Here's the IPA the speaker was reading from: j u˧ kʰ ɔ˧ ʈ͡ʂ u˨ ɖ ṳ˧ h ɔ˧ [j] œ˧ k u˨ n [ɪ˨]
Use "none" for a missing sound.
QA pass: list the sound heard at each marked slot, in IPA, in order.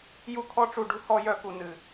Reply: j, ɨ˨

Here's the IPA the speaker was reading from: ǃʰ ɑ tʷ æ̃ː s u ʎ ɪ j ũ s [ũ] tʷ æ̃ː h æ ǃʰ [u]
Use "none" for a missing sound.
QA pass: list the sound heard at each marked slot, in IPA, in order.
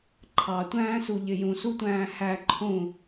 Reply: u, ũ

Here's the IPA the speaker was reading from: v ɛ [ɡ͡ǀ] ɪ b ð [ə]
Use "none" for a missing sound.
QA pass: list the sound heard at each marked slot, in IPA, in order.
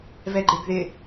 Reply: ɡ͡ǃ, ɪ

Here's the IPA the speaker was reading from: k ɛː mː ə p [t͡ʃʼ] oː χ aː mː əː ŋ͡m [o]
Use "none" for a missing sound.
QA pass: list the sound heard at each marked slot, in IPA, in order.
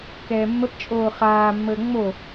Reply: t͡ʃʼ, o

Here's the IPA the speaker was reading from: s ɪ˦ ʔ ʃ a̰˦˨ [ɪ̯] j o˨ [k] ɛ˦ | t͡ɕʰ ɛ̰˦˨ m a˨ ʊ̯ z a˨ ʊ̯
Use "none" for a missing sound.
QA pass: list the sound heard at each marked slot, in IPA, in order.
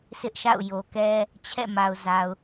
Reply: ʊ̯, k

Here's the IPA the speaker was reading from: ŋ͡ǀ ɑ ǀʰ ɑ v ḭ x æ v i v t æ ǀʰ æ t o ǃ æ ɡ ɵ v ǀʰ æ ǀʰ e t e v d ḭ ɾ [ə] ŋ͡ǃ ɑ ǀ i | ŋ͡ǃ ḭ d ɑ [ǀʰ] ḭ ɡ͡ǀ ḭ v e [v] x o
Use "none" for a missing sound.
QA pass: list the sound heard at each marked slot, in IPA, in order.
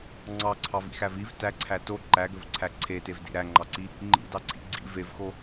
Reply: æ, ǀʰ, v

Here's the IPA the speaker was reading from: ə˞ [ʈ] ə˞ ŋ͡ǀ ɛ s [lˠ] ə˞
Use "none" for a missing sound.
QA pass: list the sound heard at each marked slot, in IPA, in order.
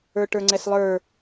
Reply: ʈ, lˠ

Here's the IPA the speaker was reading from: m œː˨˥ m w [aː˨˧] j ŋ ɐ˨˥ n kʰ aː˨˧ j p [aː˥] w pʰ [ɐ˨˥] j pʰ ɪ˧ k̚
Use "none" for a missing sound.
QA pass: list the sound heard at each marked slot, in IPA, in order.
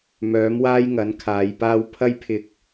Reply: aː˥, aː˥, ɐ˥

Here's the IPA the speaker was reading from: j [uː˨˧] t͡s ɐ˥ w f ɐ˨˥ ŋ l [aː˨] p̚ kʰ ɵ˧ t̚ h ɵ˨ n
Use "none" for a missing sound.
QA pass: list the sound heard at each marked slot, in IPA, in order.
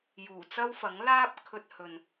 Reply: uː˨˩, aː˥

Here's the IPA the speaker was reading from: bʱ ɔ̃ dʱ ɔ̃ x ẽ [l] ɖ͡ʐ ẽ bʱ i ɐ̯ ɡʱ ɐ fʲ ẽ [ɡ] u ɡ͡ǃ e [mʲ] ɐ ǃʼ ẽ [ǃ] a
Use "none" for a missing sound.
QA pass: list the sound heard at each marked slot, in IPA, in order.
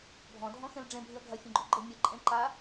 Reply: l, ɡ͡ǃ, mʲ, ǃ

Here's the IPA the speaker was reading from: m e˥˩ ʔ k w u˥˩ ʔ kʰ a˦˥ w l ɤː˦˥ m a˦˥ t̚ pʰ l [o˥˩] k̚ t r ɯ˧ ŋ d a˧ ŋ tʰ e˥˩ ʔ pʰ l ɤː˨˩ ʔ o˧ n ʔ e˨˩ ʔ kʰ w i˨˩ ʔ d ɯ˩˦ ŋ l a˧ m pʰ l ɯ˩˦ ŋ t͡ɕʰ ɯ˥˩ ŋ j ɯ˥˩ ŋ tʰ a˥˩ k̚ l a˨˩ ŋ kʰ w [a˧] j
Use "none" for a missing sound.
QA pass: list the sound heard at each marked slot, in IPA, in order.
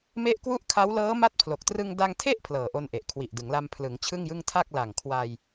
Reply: o˨˩, a˧

